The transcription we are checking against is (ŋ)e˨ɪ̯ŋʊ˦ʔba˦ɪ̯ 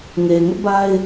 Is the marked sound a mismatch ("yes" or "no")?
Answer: no